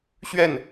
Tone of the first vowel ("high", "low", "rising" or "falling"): falling